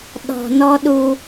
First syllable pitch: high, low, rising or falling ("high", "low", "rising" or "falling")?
low